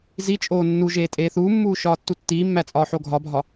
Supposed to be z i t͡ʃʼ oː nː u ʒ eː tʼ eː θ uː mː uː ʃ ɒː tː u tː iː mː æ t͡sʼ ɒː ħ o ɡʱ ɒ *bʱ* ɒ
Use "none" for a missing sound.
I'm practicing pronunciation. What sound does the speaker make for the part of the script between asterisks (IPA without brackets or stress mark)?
bʱ